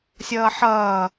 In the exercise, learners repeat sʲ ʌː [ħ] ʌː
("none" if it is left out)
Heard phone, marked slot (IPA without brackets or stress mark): ħ